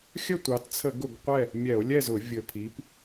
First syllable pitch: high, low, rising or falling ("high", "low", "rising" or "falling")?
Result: falling